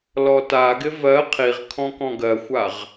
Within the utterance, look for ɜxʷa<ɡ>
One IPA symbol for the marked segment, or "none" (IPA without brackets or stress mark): ʁ